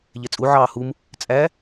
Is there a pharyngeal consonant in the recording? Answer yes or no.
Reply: yes